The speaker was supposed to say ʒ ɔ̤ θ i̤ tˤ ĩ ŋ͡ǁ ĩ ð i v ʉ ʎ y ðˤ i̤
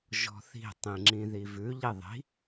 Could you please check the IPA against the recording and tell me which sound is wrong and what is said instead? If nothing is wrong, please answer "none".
y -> i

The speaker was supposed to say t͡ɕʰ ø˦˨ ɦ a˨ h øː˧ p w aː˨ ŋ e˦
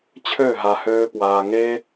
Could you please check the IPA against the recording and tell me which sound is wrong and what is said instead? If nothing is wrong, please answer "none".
none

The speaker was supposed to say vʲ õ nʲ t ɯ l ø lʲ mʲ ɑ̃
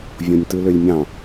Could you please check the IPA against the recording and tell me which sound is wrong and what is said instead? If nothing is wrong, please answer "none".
none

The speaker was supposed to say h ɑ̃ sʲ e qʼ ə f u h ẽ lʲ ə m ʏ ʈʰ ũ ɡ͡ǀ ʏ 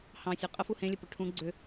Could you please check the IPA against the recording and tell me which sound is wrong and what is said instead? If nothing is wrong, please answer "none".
m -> p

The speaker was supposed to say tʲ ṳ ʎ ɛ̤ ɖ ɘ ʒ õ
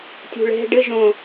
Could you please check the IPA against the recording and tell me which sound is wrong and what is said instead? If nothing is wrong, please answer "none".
ʎ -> ɭ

